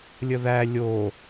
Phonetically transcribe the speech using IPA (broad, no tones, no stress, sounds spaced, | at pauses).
lʲ ə ð æ lʲ o